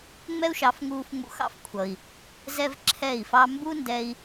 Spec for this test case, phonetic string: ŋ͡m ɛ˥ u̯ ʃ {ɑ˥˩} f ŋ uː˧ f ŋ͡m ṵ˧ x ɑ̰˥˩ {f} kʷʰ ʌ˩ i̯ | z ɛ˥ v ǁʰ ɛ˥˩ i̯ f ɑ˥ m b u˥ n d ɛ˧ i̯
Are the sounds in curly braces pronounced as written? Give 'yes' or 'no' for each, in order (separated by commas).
no, yes